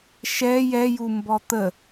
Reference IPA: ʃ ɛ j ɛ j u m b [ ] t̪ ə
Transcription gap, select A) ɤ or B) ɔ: B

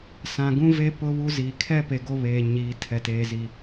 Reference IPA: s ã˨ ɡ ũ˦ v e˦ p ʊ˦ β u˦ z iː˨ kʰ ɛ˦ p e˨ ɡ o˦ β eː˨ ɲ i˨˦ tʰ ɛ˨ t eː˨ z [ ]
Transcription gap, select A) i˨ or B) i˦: A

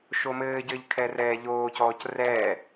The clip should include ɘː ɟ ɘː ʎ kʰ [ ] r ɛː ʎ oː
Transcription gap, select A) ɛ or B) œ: A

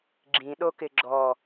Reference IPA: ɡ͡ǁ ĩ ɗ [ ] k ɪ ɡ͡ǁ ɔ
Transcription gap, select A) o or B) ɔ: A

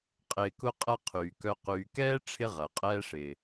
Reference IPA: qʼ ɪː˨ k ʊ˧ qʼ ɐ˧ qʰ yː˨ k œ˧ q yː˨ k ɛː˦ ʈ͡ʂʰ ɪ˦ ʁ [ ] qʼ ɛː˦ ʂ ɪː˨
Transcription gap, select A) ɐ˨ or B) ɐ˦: A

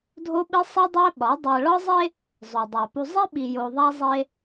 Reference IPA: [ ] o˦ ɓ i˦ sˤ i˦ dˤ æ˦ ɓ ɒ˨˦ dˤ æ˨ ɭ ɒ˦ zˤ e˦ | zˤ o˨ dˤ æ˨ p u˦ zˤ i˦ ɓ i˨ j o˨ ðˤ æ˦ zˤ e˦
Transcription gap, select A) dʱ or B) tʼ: A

